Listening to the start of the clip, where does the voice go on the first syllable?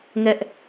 high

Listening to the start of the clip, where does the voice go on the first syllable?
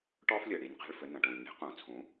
high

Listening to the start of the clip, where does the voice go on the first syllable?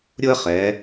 high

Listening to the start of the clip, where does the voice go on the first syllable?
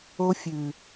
high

